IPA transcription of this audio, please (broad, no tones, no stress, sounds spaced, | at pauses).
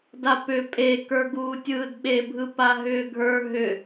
d a p ʏ pʼ e k ə˞ ɡ uː tʲ ɯː d ɓ e bʱ ɯ p a ɦ ʏː ɡʱ ə˞ ɦ ʏ